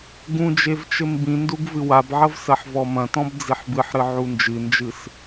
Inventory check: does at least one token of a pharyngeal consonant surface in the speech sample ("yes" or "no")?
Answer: yes